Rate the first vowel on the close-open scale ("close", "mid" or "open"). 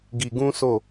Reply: close